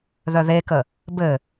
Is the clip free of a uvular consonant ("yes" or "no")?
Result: yes